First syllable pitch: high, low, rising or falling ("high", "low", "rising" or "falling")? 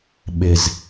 low